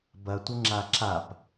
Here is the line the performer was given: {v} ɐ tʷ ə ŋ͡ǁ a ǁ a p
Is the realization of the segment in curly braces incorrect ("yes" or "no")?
yes